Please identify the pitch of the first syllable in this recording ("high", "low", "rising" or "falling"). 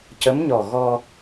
rising